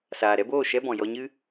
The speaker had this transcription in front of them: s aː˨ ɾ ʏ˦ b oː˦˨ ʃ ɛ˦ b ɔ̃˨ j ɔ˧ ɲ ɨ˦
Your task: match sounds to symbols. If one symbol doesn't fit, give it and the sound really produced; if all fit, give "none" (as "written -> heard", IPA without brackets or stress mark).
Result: ʏ˦ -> ɛ˦